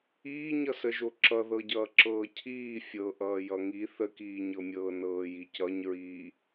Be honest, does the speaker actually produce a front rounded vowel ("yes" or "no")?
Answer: no